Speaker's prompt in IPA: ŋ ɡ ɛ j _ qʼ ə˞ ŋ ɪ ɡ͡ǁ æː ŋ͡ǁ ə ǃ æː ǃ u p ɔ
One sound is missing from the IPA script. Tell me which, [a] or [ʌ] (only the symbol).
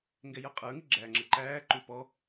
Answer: ʌ